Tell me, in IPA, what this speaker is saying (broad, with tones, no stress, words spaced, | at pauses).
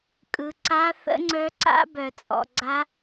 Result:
kʼɯ˨ǀa˦˥ θə̰˦˥ŋ͡ǀœ˦˥ǀa̰˦˥ bœ˨t͡sʼɔ̰˨ɡ͡ǀa˦˥